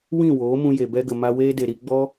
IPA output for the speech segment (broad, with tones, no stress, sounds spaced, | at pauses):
w ĩ˦˨ w oː˨˦ m ũ˧ j e˨ b ɛ˦ ɡ ə˨ m a˧ w eː˦ d e˨ ɾ i˧ ɡ͡b ɔ˦